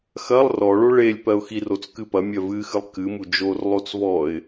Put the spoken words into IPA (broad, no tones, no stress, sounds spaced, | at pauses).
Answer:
x ɐ lˠ r ɔ ɭ o ɭ e lʲ p ɜ ʊ̯ x i r o t͡s k ɨ p ɐ mʲ ɜ v ɨ x ɨ lˠ k ɨ m u d͡ʒ o r lˠ o t͡s v ɔ ɪ̯